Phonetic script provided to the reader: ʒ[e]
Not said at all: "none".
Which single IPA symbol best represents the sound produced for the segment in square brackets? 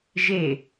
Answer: e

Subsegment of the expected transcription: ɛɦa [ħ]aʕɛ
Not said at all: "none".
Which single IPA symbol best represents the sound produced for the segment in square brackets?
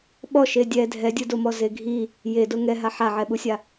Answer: ħ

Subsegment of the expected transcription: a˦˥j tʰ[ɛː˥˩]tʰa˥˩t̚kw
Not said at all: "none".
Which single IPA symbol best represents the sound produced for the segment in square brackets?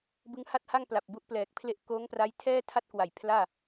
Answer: ɛː˥˩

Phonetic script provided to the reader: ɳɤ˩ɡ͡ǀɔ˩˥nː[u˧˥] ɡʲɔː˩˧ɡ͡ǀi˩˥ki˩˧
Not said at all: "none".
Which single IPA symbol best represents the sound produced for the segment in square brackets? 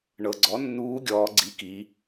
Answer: uː˧˥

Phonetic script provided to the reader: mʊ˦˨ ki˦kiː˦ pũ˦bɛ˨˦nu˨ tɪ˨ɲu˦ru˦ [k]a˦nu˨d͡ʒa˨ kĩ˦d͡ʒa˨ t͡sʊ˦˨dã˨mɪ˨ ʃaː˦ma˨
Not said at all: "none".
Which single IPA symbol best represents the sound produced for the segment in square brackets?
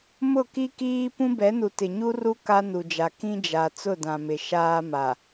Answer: k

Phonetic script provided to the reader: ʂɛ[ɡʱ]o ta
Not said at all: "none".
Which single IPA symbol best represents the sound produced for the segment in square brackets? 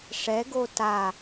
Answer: ɡ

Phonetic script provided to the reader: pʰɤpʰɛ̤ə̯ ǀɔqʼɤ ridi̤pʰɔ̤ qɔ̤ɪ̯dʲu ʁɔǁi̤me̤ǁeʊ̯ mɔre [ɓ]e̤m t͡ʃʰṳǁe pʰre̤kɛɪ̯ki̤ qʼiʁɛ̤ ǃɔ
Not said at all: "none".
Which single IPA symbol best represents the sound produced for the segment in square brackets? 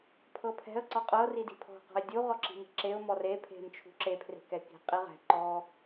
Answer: pʰ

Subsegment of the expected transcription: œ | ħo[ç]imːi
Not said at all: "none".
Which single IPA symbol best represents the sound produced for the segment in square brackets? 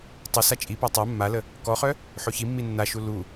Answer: ç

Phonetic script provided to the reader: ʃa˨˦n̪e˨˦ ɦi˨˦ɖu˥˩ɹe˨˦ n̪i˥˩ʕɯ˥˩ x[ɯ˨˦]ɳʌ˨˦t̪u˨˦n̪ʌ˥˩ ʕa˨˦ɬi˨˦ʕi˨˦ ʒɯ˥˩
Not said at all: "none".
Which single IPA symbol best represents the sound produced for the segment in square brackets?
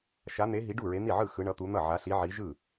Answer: ɯ˨˦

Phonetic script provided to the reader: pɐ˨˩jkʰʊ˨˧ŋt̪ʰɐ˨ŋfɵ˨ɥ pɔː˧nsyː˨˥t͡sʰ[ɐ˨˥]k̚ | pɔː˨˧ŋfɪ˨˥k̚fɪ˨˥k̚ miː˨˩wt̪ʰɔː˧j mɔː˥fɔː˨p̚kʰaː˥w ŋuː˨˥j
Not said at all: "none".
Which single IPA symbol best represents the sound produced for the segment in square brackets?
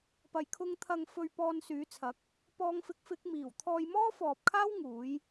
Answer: ɐ˨˥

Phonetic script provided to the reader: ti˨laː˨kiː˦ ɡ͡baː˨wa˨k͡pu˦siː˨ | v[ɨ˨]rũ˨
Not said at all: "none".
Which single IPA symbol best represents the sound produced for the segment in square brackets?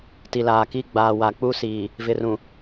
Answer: ɪ˨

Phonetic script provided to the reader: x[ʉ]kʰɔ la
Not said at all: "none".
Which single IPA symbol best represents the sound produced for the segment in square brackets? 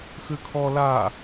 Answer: ʉ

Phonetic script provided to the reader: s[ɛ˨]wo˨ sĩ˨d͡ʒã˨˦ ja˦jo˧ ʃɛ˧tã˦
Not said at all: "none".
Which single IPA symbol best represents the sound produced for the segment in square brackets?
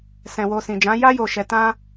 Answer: ɛ̃˨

